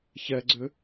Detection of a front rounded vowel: present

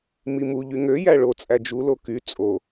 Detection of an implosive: absent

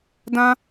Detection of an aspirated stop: absent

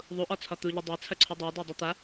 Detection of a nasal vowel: absent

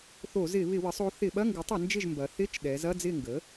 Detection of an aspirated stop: absent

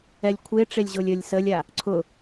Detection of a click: present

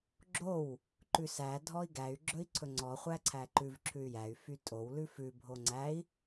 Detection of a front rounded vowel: present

